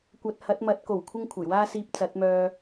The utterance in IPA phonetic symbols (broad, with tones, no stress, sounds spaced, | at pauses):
kʷ ɐ˧ t̚ h ɐ˨˥ t̚ m ɐ˨˥ t̚ k o˨˩ w kʷʰ ɪ˥ ŋ kʷʰ ɐ˨˩ j w aː˥ s iː˧ p̚ t͡s ɐ˨˥ t̚ m œː˧